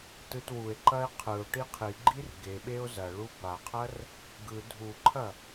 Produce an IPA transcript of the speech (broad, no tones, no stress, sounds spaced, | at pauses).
t ɯ t w u e̯ ǃ ɐ e̯ qʰ ɯ o̯ ʈ i qʰ i ɡ͡ǃ i r ɡ e ɓ e o̯ z ɐ ɭ u b a qʰ ɐ r | ɡ ɯ dʱ u ǃʰ ɐ